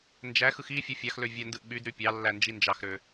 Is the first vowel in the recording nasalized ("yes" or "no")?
no